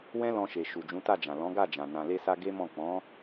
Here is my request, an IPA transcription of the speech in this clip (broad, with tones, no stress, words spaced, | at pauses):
wɛ̃˦lɔ̃˧ʃe˨ ʃu˨d͡ʒũ˨˦ta˦˨d͡ʒã˨ lɔ̃˨˦ɡa˦˨d͡ʒã˨ nã˨le˧sa˧ ɡe˦mɔ̃˦˨ k͡pɔ̃˨˦